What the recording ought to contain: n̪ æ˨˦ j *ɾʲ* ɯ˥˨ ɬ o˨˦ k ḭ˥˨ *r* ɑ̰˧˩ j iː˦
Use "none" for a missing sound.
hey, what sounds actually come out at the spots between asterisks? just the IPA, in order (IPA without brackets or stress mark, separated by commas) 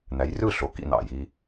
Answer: r, n̪